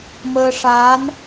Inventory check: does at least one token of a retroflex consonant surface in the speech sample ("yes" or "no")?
yes